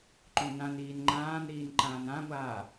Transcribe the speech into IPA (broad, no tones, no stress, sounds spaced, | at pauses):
ǃ õ n ã n iː n ŋ͡ǃ ãː n ɾ iː n ǃ ãː n ã ŋʷ aː